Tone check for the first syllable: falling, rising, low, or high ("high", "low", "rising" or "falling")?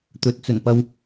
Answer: rising